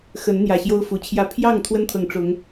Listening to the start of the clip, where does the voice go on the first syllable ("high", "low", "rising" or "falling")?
rising